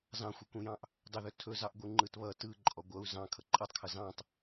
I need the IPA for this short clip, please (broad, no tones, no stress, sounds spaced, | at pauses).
z ɑ̃ xʷ ʌ kʷ ĩ j ɑ̃ ʔ | dˤ ɵ ð ɵ tʰ ɵ z ɑ ʔ ɡʷ ɯ ŋ͡ǃ ɯ t β ʌ t ɯ ǃʼ ɔ ɡʷ ʌ u̯ z ɑ̃ kʰ ʌ ǃʼ ʌ tˤ kʰ ʌ z ɑ̃ tˤ